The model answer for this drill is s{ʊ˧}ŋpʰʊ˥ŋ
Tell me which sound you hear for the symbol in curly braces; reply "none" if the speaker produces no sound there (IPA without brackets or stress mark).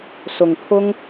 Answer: ʊ˧